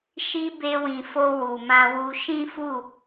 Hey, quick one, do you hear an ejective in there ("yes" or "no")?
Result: no